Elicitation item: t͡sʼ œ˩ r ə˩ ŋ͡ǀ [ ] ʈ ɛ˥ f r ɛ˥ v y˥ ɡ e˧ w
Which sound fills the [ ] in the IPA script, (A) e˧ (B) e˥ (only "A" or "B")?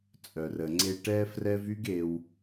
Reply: A